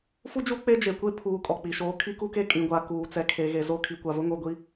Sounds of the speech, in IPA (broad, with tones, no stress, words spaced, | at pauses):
fu˦d͡ʒu˦ k͡pe˦d͡ʒe˨kʷe˦pʰuː˨ kʼɔ˨k͡pi˨ʃoː˦ kʰi˦ku˦ke˦ kʼĩ˨ɡʷa˨ kuː˨t͡sɛ˨ kʰe˨ɣe˨ zo˦˨ kʰi˨kʷa˨vʊ˦ŋo˦˨ ɡʷi˦